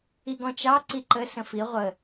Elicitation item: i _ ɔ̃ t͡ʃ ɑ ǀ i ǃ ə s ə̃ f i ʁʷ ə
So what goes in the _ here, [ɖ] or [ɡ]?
ɡ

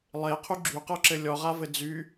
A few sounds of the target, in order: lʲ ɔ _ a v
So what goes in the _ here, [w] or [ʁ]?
ʁ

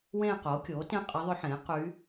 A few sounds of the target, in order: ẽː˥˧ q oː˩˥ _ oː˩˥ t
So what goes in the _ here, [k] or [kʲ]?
kʲ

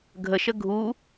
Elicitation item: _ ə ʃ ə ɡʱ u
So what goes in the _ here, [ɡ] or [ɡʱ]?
ɡʱ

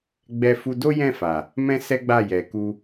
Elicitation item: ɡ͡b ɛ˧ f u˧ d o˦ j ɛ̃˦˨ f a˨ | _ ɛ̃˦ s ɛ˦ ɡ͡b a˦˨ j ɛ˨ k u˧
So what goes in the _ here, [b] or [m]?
m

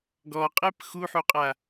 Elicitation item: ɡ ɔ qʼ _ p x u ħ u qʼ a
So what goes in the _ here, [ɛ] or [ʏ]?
ɛ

